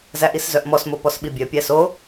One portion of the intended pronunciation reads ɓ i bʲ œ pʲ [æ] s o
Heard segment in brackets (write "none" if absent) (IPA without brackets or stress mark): æ